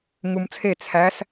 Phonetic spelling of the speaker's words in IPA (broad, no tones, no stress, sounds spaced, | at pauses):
ŋ u m t͡sʰ e t͡sʰ æ s